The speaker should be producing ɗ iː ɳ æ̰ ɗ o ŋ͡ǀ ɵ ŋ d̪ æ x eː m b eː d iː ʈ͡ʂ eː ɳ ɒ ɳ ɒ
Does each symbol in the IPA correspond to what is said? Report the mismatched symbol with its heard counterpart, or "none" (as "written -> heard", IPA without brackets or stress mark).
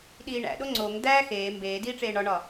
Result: ɵ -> o